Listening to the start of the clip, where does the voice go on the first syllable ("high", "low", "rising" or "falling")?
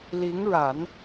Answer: rising